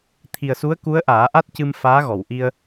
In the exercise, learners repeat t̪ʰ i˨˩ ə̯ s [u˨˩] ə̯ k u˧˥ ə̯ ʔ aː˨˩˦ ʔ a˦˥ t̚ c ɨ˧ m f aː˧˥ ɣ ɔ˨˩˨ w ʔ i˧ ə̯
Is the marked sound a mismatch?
yes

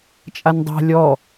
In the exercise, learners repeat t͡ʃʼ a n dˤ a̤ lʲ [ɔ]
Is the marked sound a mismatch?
no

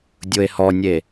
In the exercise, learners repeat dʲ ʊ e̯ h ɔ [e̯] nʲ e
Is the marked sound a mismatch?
yes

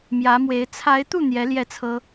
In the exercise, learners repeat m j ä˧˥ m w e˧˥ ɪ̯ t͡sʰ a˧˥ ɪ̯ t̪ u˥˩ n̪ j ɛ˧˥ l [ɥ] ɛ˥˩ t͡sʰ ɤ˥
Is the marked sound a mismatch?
yes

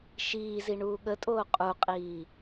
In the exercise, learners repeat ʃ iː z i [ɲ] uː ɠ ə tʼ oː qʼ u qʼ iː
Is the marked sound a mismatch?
yes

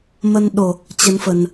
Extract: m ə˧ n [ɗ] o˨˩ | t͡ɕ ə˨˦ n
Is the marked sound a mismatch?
no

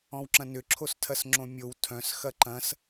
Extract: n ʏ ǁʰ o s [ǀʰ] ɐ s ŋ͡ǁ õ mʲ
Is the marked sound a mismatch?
yes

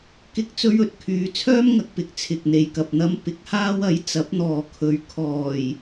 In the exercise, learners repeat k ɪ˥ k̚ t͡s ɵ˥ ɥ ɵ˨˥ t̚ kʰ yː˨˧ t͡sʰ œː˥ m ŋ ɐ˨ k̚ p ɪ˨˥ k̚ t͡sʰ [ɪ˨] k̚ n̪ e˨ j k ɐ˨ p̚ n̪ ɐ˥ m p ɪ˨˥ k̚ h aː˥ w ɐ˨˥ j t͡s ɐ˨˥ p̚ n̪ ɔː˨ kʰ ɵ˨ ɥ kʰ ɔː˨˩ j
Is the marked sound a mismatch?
no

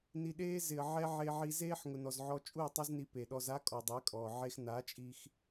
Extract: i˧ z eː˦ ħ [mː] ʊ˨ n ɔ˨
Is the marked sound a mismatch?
yes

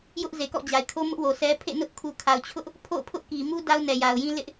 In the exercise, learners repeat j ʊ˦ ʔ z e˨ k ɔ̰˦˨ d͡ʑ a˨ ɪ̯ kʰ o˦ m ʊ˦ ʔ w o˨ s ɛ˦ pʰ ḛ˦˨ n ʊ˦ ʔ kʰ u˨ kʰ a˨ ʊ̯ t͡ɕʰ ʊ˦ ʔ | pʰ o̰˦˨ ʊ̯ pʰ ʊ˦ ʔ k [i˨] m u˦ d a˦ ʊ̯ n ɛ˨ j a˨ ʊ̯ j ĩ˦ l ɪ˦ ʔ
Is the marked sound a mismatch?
no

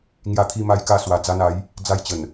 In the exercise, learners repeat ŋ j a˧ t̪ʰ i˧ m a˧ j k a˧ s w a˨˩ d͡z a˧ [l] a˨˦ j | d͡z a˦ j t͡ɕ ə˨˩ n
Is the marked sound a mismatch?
yes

